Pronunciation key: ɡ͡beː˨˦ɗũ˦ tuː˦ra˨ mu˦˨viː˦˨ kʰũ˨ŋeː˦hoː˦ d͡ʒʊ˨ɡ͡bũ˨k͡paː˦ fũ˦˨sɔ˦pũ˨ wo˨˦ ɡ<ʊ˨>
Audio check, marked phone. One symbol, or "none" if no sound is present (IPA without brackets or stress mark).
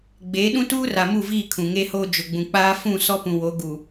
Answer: u˨